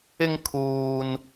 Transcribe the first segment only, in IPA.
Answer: ɪ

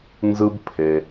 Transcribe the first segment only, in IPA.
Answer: n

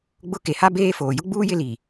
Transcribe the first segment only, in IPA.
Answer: ɡ͡b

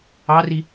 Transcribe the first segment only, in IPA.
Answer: ɑ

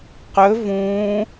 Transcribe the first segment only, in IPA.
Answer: q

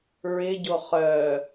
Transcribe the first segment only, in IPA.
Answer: ɹ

